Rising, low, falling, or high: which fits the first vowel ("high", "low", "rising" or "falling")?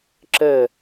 falling